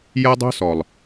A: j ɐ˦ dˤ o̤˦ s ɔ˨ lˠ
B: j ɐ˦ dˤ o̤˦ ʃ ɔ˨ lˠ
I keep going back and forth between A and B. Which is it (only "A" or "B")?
A